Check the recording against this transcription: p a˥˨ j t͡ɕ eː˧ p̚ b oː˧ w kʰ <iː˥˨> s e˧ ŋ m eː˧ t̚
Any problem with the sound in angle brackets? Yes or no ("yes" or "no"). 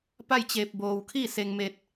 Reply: no